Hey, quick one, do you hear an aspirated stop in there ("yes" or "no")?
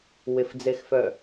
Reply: no